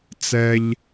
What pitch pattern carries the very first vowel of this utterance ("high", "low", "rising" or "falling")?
high